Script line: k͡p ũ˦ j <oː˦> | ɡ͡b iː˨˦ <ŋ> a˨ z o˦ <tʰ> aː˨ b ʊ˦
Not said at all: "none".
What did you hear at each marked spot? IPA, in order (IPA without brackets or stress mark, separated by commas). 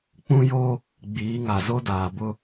oː˦, ŋ, d